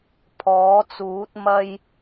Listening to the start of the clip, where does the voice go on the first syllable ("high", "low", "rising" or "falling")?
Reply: rising